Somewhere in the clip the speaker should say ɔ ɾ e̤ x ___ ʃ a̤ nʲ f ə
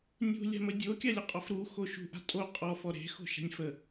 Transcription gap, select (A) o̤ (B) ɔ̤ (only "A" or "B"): A